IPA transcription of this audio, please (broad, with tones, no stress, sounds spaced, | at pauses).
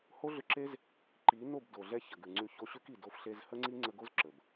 h o˦ ɮ ʏ˧ ǁ e˦ z | ǃ i˨˦ n o˦˨ b d o˨ ɮ ɛ˧ ç ə˨ ɡ ʉ˨ ŋ͡ǀ ʉ˧ ç o˧ ɕ ʉ˦ k i˨ d o˧ f ɬ e˧ z h ə˦ ŋ͡ǀ i˦ ŋ͡ǀ ə˧ ɡ o˦ z ǁ ə˨ b